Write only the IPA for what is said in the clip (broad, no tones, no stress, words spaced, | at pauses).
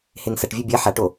heŋsɐʈvʲɵ bʲɐ ħaʈo